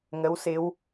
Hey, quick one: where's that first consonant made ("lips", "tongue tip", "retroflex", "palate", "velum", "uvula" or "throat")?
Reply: velum